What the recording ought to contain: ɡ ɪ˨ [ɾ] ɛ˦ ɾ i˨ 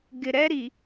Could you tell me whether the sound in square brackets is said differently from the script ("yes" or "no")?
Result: no